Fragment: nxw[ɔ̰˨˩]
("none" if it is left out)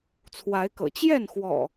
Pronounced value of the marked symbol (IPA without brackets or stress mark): ɔ̰˨˩